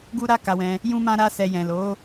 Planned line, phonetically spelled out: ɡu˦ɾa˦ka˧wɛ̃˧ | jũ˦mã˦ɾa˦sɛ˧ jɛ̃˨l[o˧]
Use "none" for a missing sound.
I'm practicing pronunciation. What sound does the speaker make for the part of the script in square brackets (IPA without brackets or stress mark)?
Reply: o˨˦